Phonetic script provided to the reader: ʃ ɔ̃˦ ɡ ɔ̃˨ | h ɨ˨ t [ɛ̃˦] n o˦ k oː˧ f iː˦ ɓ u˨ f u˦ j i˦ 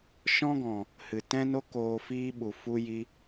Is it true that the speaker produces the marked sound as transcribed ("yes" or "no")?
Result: yes